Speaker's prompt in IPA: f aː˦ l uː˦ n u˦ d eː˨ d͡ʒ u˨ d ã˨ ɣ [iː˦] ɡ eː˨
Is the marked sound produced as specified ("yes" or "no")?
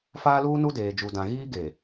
yes